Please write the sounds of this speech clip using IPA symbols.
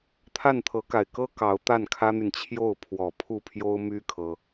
t̪ʰ a˥˩ n t̪ʰ ɤ˧˥ k a˨˩ ɪ̯ k ɤ˥ k ɑ˧˥ ʊ̯ t̪ a˥˩ n kʰ ä˥ n̪ y˨ n t͡ɕʰ j o˥˩ ʊ̯ pʰ w ɔ˨˩ pʰ u˥˩ pʰ j o˥ ʊ̯ m y˥ kʰ ɤ˥

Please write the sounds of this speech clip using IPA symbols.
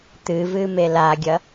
t̪ ɨ v ɨ m e l a ɡʲ ɐ

